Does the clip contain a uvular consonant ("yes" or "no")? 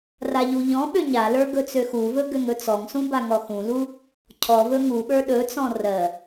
no